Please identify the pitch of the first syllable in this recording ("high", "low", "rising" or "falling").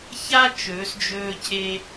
high